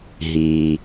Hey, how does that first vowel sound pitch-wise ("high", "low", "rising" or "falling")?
low